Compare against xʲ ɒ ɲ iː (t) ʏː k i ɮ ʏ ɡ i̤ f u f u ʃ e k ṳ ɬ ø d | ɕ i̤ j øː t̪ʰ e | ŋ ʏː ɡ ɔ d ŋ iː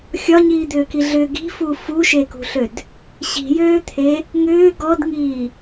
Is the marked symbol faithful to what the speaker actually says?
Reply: no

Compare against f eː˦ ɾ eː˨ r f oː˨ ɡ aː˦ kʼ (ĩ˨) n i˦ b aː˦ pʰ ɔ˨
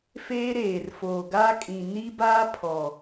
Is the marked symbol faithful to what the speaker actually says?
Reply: yes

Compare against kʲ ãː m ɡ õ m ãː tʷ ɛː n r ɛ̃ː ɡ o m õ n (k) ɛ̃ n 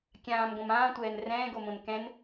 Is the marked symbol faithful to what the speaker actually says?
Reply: yes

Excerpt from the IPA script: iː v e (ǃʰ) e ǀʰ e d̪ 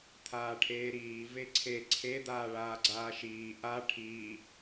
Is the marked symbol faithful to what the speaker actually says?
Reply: no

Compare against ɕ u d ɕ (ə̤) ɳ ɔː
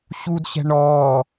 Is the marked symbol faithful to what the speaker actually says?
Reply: no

